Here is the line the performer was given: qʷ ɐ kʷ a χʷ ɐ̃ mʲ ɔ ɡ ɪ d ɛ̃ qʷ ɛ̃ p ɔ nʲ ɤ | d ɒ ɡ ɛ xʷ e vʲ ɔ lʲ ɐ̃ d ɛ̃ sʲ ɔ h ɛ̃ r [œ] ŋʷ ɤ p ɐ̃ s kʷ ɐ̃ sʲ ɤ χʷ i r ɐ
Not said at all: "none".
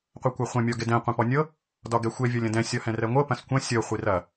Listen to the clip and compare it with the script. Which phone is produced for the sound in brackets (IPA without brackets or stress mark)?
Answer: ɛ